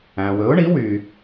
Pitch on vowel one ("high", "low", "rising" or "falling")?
low